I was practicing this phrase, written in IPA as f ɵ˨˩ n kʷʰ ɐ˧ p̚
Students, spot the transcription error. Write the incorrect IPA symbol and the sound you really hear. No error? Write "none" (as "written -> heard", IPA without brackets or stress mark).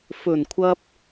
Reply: none